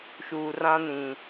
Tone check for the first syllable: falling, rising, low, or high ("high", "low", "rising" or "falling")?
low